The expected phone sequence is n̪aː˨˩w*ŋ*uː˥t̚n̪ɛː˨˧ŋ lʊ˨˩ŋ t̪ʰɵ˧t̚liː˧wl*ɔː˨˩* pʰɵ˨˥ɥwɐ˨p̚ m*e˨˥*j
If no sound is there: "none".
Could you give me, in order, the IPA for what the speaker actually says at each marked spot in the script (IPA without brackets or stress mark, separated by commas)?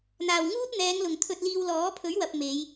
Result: ŋ, ɔː˨˥, e˨˧